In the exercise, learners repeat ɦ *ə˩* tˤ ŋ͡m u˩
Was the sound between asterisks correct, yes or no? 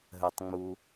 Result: yes